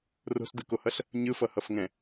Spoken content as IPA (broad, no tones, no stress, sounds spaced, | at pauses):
r o̤ s d ɯ k o h ʌ ɬ | ɲ ɯ f ʌ h ʌ f ŋ ɛ̃